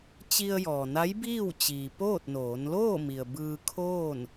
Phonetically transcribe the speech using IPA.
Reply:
t͡ɕ i˧ ə̯ j ɔː˩ n a˧˥ j b iː˥˨ w t͡ɕ iː˩ p oː˥˨ t̚ n oː˩˧ n l oː˥˨ m i˩ ə̯ b ɯː˧ kʰ oː˥˨ n

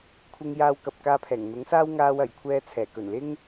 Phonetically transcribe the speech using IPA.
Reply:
kʷʰ ɪ˧ ŋ j aː˧ w k ɐ˨ p̚ k aː˧ pʰ ɛː˨˩ ŋ n̪ ʊ˨˥ ŋ s aː˥ w ŋ aː˧ w ɐ˨˩ j kʷʰ ɛː˧ t͡sʰ ɛː˨˩ k ɵ˨˩ n l ɪ˥ ŋ

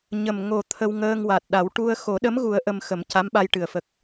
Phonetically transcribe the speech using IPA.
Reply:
ɲ ə˨˩ m ŋ o˨˩ t̪ʰ ə˧ w ŋ əː˧ ŋ w a˨˩ t̚ ɗ a˨˩˦ w ʈ u˧ ə̯ x o˨˩˦ ɗ ə˧˥ m ɣ u˨˩˦ ə̯ ʔ ə˧ m x ə˨˩˦ m c a˧˥ m ɓ a˧ j ʈ ɨ˨˩ ə̯ f ə˨˩ k̚

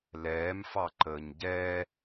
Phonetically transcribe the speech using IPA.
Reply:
l ɛː m f ɑ ǃ əː ɲ ɟ ɛː

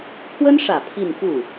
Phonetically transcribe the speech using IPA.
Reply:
pʰ w ə˥ n ʂ ä˨˩ pʰ i˥˧ n f u˥˩

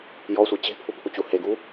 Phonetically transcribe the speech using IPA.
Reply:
j ɔ sʷ e t͡ɕ e̤ pʰ u pʰ u t͡ɕ u h e ɡ u

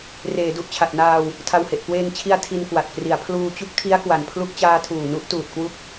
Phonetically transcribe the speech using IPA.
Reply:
r eː˩˦ d u˨˩ ʔ t͡ɕʰ a˨˩ t̚ n aː˧ w | tʰ a˧ w h e˨˩ ʔ k w eː˧ ŋ t͡ɕʰ i˧ a̯ tʰ i˧ n k w a˨˩ t̚ k r i˩˦ a̯ pʰ l uː˧ t͡ɕ u˥˩ k̚ tʰ i˦˥ a̯ k w a˨˩ n pʰ l u˦˥ k̚ t͡ɕ aː˦˥ tʰ uː˨˩ n u˦˥ ʔ t uː˨˩ t̚ k w u˦˥ k̚

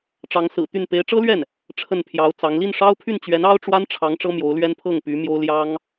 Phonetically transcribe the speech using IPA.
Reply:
ʈ͡ʂ ɑ˧˥ ŋ s ɹ̩˨˩ t̪ y˥˩ n p e˧˥ ɪ̯ ʈ͡ʂ ɤ˥ l ɥ ɛ˥˩ n | ʈ͡ʂʰ ə˥˩ n pʰ j ɑ˧˥ ʊ̯ t͡s ɑ˧˥ ŋ l i˥˩ n ʂ ɑ˥ ʊ̯ pʰ y˥˩ n t͡ɕ ɥ ɛ˧˥ n ɑ˥ ʊ̯ ʈ͡ʂ w a˥ n ʈ͡ʂʰ ɑ˧˥ ŋ ʈ͡ʂ ɤ˥ m j o˧˥ ʊ̯ l ɥ ɛ˥ n pʰ ɤ˥˩ ŋ p y˧˥ m j o˥ ʊ̯ l j ɑ˥ ŋ

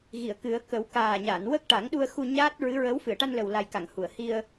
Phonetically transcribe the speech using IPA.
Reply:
ɣ i˨˩˨ ə̯ k ɨ˨˩˦ ə̯ k ə˨˩˦ w k aː˨˩ ɲ a˨˩˨ n w ə˦˥ k̚ ʈ a˨˩˦ ŋ ɗ u˧ ə̯ x u˧ ɲ aː˦˥ t̚ ɹ ɨ˧˥ ɹ ə˧˥ w f ɨ˨˩˨ ə̯ ʈ a˧ n l ə˨˩ w l a˨˩ j k a˨˩˨ ŋ h u˨˩˨ ə̯ h i˧ ə̯

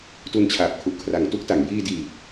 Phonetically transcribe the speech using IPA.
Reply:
t u˧ n t͡ɕʰ aː˨˩ p̚ kʰ u˨˩ ʔ kʰ r a˨˩ ŋ t u˥˩ k̚ t a˩˦ ŋ j iː˧ d iː˨˩ t̚

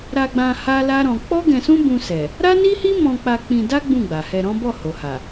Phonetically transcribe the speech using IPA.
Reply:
ɾ a˧ ɡ͡b ã˧ h a˦ l a˦ ɾ ɔ̃˧ k͡p ɔ˦ ɡ ɛ̃˧ s ũ˦ b ũ˧ s ɛ˨ | ɾ a˦ n i˦ h i˦ m ɔ̃˧ k͡p a˧ k͡p ĩ˧ d a˦ ɡ͡b ũ˦˨ ɡ͡b a˨ h ɛ˧ ɾ ɔ̃˦ b ɔ˦˨ h o˨ h a˨

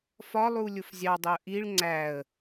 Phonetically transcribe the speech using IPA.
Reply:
f ɒ lˠ u lʲ ʊ f zʲ ɑ dˤ ʊ ə̯ ʔ i ɭ ŋ͡ǀ æ ə̯

